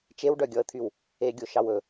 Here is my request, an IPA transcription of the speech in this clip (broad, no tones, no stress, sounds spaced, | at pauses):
t͡ʃ e w ɖ œ ɡʲ ɔ ə̯ t̪ʰ y w | e ɡʲ o ʃ ɑ w ɵ